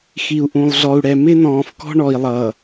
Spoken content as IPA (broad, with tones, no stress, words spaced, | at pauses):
xi˨u̯ʔũ˨lˠɮɔ˨u̯ɽɛ˨ mɪ˦ nɔ̃ː˨fkɔ̤˦ ɳɔ˨i̯lˠʌː˨